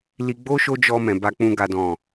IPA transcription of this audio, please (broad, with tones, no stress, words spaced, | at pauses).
li˧ɡ͡bo˦ ʃo˦d͡ʒɔ˧ mɛ̃˨ba˧k͡pũ˧ ɡa˨dɔ̃˨